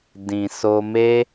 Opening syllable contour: low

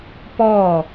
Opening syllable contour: falling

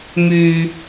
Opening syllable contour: low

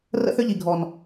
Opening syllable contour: high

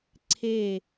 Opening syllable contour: falling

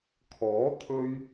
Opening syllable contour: rising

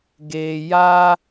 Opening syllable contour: low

